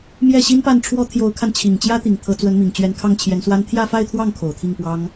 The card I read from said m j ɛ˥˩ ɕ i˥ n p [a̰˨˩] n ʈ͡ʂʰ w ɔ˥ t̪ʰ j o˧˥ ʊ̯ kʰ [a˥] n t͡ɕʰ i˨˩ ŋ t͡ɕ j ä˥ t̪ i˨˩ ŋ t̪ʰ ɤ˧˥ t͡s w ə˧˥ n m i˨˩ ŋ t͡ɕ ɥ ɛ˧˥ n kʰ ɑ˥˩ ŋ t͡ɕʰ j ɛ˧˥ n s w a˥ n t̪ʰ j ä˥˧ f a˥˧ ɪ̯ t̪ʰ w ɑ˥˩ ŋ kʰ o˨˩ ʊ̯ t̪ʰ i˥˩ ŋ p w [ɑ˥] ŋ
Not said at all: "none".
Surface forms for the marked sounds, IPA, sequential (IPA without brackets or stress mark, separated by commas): a˥˩, a˧, ɑ˥